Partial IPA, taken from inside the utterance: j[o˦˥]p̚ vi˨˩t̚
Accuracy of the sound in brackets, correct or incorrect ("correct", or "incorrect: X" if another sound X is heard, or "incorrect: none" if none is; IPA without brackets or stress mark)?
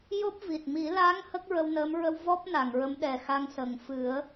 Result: correct